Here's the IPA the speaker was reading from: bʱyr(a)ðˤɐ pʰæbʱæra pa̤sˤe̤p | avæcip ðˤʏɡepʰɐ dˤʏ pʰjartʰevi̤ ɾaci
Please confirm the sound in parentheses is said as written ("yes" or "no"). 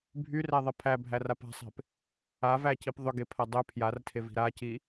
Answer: no